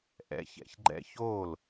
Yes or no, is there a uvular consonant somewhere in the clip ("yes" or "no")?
no